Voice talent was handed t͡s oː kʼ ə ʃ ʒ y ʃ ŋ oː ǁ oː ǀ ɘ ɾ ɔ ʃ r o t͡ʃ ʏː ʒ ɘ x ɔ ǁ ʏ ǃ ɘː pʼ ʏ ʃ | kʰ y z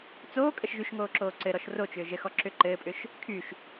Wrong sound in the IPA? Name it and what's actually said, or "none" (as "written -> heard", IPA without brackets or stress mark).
z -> ʃ